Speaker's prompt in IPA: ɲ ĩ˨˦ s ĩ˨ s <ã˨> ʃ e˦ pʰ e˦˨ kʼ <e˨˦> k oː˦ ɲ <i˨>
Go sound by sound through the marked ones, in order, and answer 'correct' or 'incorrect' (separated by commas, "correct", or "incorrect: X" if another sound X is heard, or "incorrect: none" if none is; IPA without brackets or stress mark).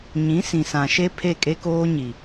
correct, incorrect: e˦, correct